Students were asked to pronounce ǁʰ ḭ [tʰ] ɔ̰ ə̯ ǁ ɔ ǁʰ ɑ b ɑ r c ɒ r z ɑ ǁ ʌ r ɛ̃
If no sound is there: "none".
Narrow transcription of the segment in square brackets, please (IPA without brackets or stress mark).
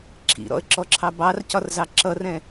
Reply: ɾ